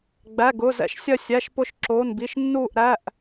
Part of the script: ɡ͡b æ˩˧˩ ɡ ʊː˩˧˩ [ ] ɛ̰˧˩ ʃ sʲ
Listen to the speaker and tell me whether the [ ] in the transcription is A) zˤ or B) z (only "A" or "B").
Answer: B